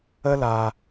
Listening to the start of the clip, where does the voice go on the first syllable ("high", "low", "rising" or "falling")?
high